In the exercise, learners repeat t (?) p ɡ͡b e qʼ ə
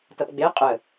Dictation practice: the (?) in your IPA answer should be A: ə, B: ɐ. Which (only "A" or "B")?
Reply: B